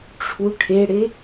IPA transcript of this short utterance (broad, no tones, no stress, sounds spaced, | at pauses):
ʈ͡ʂʰ u ʈʰ e ɽ e